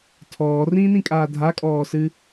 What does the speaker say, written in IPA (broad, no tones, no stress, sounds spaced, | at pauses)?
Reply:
tʰ ɔː r ĩː n ĩ kʼ aː dʱ a kʼ ɔː s ɨ